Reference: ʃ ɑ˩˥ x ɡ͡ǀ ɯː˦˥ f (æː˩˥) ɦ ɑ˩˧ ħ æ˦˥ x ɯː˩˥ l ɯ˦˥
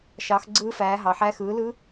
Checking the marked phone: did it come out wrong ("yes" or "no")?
no